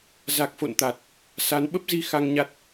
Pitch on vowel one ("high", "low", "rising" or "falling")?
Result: low